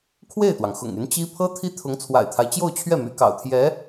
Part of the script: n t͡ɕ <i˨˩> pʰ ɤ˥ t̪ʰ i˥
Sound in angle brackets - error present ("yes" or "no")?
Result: yes